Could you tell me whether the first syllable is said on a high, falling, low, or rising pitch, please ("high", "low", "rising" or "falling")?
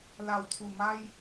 low